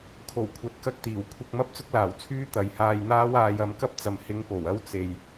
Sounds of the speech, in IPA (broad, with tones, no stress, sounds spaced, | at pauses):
kʰ o˨˩ w kʷʰ ɐ˨˥ t̚ k ɐ˧ k̚ t̪ iː˨˩ w kʷʰ ɐ˧ k̚ m ɐ˥ p̚ t͡s ʊ˥ k̚ l aː˨˩ w t͡sʰ yː˥ t̪ ɐ˨ j h aː˧ j n̪ aː˥ w aː˧ j ɐ˨˧ m k ɐ˥ p̚ t͡s ɐ˨ m h ɪ˨˧ ŋ p o˨˩ w ɐ˥ w t͡s e˨ j